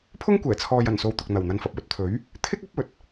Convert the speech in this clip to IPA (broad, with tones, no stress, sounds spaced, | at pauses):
pʰ ʊ˥ ŋ kʷ ɛː˨˩ t͡sʰ ɔː˨ j ɐ˨˩ n s o˨ w t̪ ʊ˨ k̚ n̪ ɐ˨˩ w n̪ ɐ˧ n f ɐ˨ p̚ w ɵ˧ t̚ t̪ʰ ɵ˨˥ ɥ | t̪ʰ ɪ˥ k̚ ɐ˨˥ p̚ ɵ˨˥ t̚